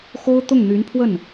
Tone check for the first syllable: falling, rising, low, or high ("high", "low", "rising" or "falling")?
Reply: high